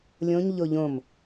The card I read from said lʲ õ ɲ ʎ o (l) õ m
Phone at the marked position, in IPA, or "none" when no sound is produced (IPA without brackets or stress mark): ʎ